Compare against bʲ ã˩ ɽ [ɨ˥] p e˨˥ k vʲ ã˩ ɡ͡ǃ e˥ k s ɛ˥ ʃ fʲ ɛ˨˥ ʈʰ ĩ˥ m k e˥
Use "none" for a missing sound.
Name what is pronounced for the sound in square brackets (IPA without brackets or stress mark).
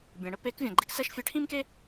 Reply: ə˥